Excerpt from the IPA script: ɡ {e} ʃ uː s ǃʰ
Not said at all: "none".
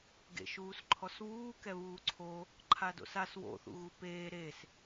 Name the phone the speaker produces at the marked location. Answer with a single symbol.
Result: ḛ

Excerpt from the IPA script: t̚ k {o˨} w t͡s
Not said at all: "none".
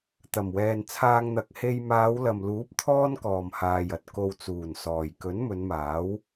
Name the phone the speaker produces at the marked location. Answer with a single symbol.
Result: o˨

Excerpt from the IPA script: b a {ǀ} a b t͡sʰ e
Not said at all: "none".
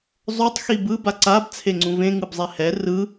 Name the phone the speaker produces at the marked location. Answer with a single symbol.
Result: ǀ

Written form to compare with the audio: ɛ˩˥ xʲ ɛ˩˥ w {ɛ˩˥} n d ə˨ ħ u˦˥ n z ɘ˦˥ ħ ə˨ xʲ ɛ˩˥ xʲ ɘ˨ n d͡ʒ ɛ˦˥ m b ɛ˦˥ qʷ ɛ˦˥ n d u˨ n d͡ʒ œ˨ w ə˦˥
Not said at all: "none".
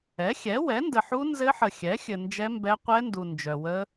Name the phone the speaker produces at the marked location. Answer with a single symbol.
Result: ɛ˩˥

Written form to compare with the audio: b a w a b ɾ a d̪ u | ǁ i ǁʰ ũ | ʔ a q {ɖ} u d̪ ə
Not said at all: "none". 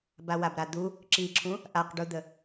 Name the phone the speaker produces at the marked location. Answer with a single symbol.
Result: ɖ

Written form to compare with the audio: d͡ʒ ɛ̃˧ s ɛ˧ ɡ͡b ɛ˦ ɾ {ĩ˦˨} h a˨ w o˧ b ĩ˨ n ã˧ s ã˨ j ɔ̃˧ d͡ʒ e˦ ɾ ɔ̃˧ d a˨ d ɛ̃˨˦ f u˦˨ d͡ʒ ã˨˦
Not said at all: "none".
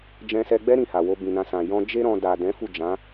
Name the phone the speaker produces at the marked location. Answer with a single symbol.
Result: ĩ˦˨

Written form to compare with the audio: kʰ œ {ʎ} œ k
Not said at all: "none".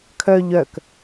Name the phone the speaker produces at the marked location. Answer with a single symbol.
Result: ʎ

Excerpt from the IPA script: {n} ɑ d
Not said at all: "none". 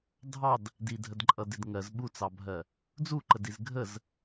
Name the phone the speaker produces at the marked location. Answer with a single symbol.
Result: dʱ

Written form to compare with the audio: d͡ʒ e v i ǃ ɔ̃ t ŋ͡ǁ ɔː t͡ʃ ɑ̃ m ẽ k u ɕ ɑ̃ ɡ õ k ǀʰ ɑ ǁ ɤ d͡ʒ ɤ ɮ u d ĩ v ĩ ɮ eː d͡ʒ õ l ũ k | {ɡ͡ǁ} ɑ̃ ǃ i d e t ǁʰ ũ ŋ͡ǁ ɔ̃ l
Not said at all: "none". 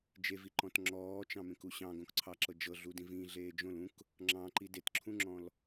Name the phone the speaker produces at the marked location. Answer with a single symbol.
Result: ŋ͡ǁ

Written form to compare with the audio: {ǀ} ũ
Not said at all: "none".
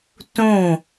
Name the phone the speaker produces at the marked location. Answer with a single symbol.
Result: t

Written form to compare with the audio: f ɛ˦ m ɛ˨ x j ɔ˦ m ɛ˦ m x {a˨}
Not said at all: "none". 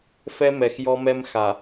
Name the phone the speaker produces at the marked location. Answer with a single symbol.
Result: a˨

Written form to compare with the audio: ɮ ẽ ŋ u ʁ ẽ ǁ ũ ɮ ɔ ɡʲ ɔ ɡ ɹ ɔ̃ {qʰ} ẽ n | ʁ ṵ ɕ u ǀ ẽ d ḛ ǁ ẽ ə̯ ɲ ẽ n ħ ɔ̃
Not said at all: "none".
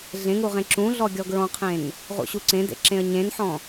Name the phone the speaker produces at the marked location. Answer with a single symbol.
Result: qʰ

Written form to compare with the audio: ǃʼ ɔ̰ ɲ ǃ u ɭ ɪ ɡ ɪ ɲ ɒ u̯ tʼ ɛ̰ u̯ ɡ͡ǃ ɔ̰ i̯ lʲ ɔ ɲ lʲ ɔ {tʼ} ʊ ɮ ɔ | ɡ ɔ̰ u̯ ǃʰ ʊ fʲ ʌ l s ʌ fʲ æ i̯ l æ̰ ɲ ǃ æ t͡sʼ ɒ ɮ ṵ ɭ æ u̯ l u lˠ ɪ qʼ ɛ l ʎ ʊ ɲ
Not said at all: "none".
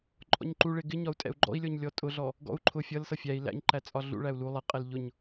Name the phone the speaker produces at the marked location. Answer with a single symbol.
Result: tʼ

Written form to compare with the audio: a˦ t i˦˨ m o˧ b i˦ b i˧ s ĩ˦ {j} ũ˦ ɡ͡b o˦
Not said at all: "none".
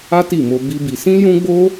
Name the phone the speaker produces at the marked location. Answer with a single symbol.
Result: j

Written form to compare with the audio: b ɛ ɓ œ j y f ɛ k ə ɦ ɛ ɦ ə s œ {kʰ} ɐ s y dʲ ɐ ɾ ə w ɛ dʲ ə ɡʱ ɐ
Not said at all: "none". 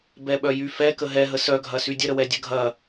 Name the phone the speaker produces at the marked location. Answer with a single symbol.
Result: ɡʱ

